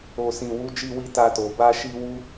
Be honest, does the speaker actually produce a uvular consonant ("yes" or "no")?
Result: no